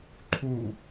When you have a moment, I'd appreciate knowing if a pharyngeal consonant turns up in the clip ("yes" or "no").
no